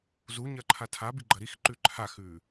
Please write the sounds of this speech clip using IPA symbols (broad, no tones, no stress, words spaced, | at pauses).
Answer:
zuɲɐǃʰa tʰabi ɡ͡ǃɐɾixǃʉ ǃʰaxʉ